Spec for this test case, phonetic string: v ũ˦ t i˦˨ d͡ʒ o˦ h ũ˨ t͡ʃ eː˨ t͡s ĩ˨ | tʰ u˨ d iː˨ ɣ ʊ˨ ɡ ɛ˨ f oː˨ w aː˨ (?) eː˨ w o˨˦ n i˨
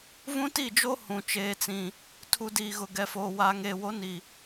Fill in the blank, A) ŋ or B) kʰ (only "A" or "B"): A